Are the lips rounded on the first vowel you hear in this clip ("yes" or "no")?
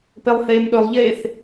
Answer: no